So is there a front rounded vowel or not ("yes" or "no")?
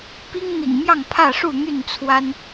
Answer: yes